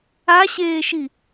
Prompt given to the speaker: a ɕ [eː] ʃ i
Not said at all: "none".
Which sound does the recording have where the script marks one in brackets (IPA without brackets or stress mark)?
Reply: eː